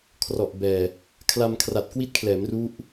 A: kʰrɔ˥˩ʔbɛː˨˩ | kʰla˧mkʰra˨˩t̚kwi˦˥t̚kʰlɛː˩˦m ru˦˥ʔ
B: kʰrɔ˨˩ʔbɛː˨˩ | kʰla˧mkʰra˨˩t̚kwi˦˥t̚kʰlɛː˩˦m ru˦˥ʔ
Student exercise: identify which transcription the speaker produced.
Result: B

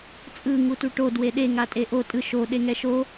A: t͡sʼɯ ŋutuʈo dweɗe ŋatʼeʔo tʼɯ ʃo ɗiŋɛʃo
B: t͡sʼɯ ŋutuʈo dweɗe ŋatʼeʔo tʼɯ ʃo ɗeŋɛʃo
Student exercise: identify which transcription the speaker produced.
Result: B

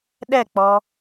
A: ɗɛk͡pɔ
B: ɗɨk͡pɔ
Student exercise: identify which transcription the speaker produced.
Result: A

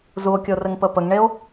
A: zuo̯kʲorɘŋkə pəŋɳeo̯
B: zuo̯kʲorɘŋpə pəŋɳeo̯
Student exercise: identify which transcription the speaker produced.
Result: B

